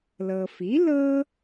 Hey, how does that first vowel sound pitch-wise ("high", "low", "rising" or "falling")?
low